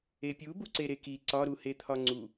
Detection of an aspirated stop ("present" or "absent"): present